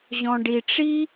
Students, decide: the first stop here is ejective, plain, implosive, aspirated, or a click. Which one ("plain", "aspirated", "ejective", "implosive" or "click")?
plain